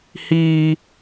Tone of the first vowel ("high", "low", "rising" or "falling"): high